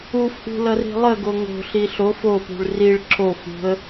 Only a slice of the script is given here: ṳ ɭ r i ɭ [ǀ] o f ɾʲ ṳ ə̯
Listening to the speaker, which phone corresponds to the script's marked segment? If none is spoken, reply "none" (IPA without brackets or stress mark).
ǁ